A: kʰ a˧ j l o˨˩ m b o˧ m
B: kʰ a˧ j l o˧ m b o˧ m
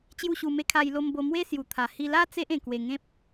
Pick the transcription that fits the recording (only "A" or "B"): B